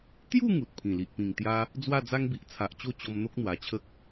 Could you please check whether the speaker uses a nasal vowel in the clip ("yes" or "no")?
yes